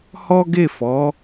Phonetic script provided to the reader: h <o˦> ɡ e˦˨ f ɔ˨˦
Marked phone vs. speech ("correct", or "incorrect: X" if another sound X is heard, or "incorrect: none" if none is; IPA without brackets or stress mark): incorrect: ɔ˦